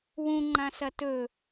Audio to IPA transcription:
wũŋ͡ǃãsɐ tɵ

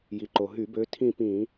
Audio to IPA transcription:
ji˩ǃo˩ɦy˧˩˧bø˨˦ tʰĩ˦˨pĩ˧˩˧

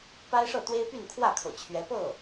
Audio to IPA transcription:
pa˥ɪ̯ʂɤ˥˩t̪we˥ɪ̯py˥˧n kʰwä˥˩kʰɤ̰˨˩ t͡ɕʰɥɛ˧˥ pɤ˥˩

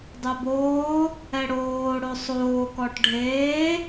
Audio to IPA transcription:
dˤøboː | ɛɽoː ɽosˤoː kɔʈɖʱeː

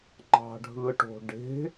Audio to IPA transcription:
ŋ͡ǃɑ̤ɖʱɯʈo̤ɖe̤

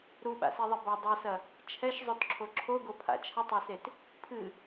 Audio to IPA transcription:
ɾuɓa̰seðˤɛ bɐ dˤɛsɐ | t͡ʃʰɛʃzˤotǁʰo ǁʰoɡopʰa̰ t͡ʃʰətˤaset | pʰɨ

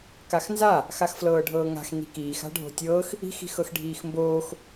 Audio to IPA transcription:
kaxnza | xaxflɤːɖʱɤːŋa̤x ni̤kiːx a̤ɖʱo̤tʲɤːx | i̤x i̤xɤxɖʱiːxmboːx

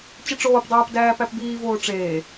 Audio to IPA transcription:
t͡ɕeʈ͡ʂoːpdˤæːp dæːpæpbiːvoː ʈ͡ʂeː

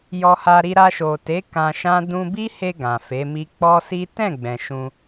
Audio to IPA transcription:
jɔ˧ha˧ ɾi˧ɾa˧ʃo˨te˨˦ kã˧ʃã˦ dũ˧bi˦he˧ ɡã˨fe˨˦mi˦ k͡pɔ˦si˦ tɛ̃˦˨ɡ͡bɛ̃˨ ʃũ˧

